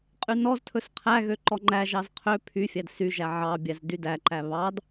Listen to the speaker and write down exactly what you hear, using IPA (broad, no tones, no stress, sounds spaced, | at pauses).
qʼ y n ɔ z tʰ ɵ s qʰ æ ɣ ø ǃ ɔ ŋ͡ǃ æ ʒ ɑ z qʰ ø pʰ y fʲ æ d s y ʒ æ ʕ ɑ bʲ æ z d y d æ ǃ æ β ɑ d